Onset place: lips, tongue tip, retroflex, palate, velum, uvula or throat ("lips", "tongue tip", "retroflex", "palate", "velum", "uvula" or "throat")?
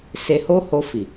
tongue tip